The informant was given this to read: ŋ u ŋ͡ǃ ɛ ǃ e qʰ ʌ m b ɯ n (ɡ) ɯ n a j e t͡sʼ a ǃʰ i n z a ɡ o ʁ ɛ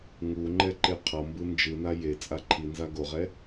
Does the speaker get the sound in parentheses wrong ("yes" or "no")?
yes